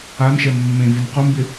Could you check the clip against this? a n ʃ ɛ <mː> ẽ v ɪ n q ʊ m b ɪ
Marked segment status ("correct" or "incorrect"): correct